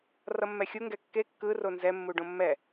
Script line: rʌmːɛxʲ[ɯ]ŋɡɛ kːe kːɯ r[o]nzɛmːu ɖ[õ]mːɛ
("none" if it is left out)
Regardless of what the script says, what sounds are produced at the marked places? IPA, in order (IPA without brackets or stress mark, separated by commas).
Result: u, o, õ